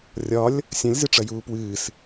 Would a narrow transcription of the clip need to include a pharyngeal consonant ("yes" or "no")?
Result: no